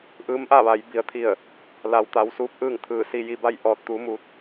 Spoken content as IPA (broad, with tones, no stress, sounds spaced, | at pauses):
ʔ ɯː˧˥ m ʔ a˥˨ ʋ a˩˧ j b i˩˧ ə̯ t̪ʰ i˧˩ ə̯ | l a˩ w t̪ a˩˧ w s uː˧ p̚ ʔ ɯː˥˨ ŋ t̪ʰ ɯː˧˩ s i˧ j i˧ b a˥˨ j ʔ ɔː˧ t̚ t̪ u˧˥ m uː˧ t̚